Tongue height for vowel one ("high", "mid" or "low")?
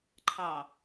low